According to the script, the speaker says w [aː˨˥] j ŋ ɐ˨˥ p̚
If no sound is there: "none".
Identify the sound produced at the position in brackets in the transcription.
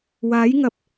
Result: aː˨˥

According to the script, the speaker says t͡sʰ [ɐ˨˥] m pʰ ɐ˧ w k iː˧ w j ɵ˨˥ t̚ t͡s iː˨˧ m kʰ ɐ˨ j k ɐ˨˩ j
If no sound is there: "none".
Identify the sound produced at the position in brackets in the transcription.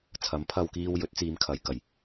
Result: ɐ˨˥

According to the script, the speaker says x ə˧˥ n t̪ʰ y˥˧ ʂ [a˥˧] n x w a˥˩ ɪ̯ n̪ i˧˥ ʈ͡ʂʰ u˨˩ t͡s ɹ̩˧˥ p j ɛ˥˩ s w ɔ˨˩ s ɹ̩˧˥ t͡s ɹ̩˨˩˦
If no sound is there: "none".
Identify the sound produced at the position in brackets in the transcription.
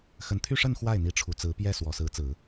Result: ə˥˧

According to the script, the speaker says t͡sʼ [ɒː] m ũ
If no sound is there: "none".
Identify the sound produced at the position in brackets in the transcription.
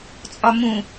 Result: ɒ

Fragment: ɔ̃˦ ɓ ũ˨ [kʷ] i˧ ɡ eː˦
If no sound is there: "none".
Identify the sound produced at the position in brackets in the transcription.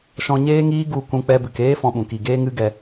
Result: k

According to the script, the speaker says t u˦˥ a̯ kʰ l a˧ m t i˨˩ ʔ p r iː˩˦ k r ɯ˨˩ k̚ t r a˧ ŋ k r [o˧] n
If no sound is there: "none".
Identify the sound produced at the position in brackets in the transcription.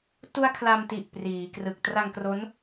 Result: o˦˥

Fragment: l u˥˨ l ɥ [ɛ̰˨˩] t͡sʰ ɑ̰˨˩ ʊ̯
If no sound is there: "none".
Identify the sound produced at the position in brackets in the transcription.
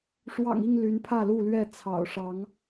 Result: ɛ˥˨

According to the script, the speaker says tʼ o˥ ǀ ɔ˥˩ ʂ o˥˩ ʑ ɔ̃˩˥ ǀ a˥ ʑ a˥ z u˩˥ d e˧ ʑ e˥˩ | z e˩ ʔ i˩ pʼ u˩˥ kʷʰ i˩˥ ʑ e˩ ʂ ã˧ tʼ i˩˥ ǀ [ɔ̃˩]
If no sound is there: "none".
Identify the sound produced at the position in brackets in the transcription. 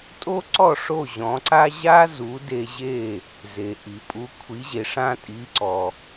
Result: ɔ˩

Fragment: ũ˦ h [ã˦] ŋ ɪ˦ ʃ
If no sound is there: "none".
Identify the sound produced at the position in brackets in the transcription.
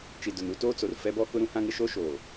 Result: ã˦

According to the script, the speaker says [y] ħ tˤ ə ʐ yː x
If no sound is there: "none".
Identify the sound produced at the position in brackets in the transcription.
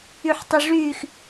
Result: y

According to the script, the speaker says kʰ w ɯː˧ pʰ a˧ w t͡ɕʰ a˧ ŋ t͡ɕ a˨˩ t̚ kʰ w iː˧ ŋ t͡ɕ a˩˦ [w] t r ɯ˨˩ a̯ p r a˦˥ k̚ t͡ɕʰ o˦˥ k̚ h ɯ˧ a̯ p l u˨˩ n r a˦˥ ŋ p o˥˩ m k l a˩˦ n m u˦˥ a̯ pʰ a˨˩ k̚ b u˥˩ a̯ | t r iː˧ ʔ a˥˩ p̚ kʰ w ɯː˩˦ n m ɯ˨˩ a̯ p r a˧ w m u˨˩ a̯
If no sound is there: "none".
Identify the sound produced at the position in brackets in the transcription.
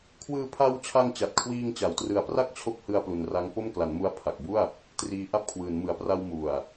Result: w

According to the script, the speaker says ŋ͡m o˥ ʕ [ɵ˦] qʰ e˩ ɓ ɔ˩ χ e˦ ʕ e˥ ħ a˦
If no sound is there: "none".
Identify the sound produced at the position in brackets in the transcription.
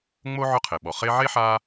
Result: ɵ˦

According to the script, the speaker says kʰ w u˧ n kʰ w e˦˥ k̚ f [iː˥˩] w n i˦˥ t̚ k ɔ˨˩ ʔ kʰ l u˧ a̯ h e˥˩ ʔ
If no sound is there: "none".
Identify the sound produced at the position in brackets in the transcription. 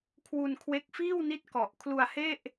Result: iː˥˩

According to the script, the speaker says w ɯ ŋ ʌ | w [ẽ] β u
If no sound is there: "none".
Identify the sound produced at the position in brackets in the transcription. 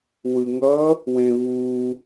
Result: ẽ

